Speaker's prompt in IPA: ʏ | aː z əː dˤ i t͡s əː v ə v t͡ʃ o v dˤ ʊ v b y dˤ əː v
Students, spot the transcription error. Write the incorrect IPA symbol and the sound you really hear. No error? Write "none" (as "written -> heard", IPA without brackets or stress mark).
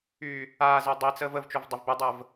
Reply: ʏ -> y